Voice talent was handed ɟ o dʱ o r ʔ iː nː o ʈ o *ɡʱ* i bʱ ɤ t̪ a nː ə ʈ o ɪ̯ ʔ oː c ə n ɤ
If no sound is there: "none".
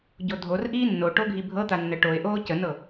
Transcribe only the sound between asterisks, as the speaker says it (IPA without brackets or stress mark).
ɡʱ